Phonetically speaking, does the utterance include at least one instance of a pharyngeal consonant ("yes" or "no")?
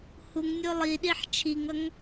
yes